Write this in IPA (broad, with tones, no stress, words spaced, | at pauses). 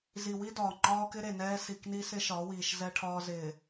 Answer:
zi˨wi˦dɒː˨ ŋ͡ǃɒː˦kɪ˦ɾe˨nɛː˦ si˨kni˦sɪ˦ ʃɒ˨˦wiː˨ʃ zɛ˦ʈʰɒː˦ zɪː˨